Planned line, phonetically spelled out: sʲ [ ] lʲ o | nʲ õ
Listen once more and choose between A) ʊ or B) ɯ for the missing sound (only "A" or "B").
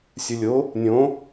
B